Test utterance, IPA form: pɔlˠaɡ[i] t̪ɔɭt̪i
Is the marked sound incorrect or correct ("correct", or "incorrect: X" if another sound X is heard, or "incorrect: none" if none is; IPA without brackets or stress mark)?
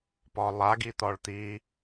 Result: correct